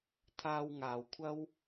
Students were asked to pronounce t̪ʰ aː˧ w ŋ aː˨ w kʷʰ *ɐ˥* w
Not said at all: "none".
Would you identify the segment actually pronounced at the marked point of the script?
ɐ˥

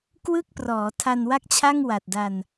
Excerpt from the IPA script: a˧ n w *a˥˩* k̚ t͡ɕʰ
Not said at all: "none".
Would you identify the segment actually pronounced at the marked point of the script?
a˥˩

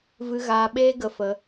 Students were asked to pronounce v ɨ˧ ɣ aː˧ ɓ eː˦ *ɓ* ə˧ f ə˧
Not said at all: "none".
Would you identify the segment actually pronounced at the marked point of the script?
ɡ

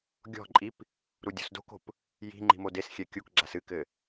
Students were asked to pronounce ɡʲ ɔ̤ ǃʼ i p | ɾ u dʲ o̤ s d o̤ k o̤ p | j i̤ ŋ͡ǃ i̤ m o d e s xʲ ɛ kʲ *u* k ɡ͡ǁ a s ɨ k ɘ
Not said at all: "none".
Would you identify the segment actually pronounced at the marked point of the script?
u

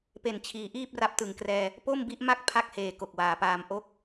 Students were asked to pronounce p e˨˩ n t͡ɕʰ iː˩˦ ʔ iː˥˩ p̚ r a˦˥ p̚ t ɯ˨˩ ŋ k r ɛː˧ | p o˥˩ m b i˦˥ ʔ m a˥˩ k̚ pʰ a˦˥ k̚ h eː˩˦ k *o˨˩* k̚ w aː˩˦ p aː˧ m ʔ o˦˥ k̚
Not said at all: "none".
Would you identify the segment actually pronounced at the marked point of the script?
o˨˩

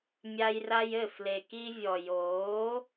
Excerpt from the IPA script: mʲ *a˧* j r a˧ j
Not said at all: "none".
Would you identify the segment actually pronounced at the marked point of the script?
a˧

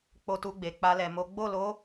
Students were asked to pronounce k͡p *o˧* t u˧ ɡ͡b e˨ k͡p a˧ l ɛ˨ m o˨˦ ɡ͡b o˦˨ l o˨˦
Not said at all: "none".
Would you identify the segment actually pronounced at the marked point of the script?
o˧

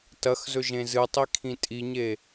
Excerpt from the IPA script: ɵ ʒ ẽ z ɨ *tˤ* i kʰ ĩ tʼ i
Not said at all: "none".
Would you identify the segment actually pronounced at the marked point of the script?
tˤ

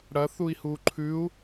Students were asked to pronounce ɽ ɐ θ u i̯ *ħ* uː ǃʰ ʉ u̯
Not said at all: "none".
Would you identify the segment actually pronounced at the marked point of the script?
h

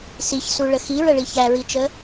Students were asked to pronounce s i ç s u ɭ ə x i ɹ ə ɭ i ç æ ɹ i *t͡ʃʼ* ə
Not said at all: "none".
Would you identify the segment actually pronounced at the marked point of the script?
t͡ʃ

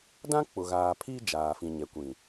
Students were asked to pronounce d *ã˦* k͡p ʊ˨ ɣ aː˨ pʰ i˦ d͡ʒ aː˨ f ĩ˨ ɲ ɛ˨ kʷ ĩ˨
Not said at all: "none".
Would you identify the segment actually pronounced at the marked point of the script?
ã˦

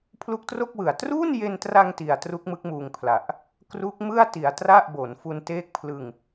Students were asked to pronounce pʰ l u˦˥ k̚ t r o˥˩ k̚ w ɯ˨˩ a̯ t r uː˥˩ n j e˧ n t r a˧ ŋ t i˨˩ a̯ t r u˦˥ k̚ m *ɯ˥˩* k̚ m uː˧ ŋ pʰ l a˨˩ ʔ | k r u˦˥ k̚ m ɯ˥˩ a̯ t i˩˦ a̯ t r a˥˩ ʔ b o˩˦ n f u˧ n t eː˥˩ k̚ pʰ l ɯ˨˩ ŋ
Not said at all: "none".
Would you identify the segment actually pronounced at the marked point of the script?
ɯ˦˥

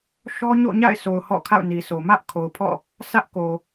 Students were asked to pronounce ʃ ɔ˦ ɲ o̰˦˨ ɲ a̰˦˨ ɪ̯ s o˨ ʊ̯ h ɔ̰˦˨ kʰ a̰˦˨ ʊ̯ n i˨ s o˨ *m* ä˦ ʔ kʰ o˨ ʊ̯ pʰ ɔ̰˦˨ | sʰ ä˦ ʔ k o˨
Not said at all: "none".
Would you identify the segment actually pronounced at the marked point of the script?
m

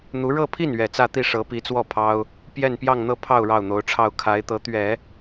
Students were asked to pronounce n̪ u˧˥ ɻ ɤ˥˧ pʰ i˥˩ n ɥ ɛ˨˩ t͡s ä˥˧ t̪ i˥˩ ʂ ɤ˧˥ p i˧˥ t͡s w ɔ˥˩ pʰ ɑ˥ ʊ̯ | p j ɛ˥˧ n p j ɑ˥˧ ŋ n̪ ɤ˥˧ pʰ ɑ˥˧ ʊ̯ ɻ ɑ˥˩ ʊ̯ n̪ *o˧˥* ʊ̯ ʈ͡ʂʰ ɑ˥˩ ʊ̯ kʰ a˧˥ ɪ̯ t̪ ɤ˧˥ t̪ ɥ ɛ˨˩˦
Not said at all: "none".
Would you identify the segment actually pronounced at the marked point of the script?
o˧˥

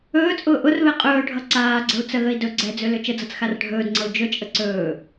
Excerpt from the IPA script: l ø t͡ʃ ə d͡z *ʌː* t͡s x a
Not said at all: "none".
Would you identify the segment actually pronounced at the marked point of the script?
ʌ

